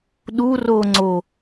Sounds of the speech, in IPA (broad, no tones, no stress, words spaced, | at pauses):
ɗuro ŋ͡ǀo